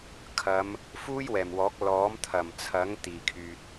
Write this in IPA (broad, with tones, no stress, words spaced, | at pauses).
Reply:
kʰɐ˨˧m | fuː˥jwɛː˨˩mwɔː˨˥k̚ lɔː˨˥m t̪ʰɐ˨˩mt͡sʰɐ˨˥ŋ t̪iː˨˩kʰyː˨t̚